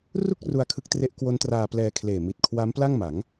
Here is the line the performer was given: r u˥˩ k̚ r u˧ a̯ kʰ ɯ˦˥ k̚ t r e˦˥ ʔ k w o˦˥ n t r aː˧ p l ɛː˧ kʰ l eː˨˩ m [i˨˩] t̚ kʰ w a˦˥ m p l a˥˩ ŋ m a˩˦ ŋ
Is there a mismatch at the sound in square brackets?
no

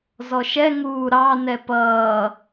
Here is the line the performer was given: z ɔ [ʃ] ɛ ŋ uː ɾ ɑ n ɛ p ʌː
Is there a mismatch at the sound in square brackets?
no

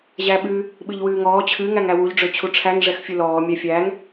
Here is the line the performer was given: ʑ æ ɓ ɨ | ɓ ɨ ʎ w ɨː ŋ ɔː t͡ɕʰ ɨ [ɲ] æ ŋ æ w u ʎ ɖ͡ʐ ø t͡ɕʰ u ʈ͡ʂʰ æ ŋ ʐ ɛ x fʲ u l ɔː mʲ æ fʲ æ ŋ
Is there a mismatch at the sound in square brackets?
yes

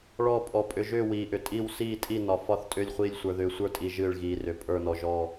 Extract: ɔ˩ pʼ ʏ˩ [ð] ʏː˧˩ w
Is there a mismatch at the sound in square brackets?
yes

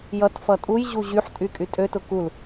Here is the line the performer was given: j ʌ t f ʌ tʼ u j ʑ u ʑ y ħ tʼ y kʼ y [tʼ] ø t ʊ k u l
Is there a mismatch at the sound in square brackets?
no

